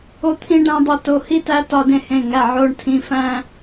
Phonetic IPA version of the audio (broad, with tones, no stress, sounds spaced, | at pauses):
o˧ t̪ʰ ĩ˧ ɖ æ̃˧ dˤ o˧ t o˩˧˩ h i˧ t æ˧ t ɒ˧ d ẽ˧ h ẽ˩˧˩ ŋ æ˩˧˩ ʕ o˩˧˩ ɳ tʰ ĩ˩˧˩ f æ̃˧